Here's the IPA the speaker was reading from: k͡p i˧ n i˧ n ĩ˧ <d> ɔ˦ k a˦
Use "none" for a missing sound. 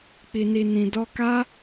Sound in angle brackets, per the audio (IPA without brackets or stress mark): d